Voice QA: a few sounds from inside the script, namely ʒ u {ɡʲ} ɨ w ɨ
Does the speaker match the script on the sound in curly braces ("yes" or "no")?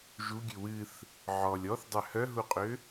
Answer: yes